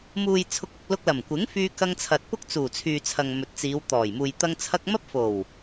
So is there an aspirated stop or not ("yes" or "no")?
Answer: yes